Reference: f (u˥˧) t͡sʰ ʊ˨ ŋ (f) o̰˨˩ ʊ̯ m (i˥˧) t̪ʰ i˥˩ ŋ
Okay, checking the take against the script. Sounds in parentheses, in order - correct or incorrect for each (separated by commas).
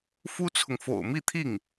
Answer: incorrect, correct, correct